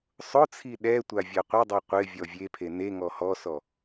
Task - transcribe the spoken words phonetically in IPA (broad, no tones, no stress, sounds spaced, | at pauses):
sˤ ʊ t͡sʰ i ɗ ɛ tʷ a vʲ a qʷ ɪ dˤ u qʷ ɪ vʲ ɔ vʲ e pʰ e n e ŋ ɔ h ɔ s ɔ